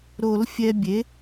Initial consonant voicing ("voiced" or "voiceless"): voiced